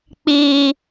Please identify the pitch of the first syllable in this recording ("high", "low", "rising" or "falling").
low